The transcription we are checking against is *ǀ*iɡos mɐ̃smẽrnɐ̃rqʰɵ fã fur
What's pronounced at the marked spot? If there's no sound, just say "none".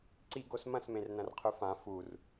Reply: ǀ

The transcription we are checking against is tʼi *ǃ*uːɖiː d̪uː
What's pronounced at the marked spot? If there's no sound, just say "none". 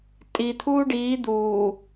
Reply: t̪ʰ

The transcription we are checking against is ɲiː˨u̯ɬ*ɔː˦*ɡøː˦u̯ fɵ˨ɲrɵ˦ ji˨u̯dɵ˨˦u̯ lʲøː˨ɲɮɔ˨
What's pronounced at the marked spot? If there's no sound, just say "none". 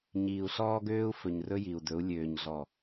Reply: ɔː˦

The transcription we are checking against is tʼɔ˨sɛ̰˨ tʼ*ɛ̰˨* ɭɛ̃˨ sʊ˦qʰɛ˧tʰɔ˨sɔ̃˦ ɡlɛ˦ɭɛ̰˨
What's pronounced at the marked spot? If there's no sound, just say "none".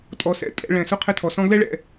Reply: ɛ̰˨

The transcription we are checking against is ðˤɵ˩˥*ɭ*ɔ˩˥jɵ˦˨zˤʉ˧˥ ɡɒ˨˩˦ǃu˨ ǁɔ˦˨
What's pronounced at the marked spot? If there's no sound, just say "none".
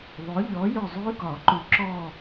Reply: ʎ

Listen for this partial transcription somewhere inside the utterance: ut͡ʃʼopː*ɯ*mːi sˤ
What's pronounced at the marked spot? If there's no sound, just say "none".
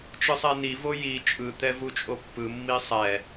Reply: ɯ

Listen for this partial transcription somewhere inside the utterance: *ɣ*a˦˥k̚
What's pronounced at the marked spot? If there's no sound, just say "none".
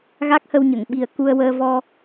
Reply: ɣ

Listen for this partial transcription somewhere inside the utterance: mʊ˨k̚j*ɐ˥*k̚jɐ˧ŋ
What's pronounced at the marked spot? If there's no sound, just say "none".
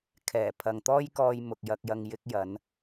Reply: ɐ˧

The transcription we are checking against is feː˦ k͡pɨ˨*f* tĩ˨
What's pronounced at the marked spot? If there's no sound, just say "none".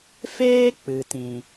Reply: none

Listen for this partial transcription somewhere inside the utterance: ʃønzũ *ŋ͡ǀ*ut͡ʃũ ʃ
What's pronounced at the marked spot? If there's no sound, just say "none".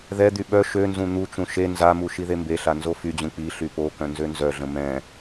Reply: n̪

